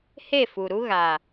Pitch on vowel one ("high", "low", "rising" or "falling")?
falling